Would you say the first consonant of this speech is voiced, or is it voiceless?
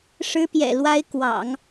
voiceless